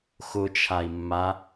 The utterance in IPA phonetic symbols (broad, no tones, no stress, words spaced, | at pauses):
xʊt͡ʃʰai̯mːa